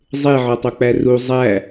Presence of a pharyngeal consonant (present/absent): present